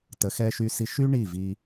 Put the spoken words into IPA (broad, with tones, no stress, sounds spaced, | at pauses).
t ə˨˦ x ɛ˧ ʃ y˧ s i˧ ʃ y˦ ɳ i˦˨ v i˧